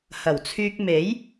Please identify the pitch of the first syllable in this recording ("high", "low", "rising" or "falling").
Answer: low